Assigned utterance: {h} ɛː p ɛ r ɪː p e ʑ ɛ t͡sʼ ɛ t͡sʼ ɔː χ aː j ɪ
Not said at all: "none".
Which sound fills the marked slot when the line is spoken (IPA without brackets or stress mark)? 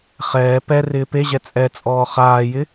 χ